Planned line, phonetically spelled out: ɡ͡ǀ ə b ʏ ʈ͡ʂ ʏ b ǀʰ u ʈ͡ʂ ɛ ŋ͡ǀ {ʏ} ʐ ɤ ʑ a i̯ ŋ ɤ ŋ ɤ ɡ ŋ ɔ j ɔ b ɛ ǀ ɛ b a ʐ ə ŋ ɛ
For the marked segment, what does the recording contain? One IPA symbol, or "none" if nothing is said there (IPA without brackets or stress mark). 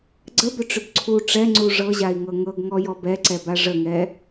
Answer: u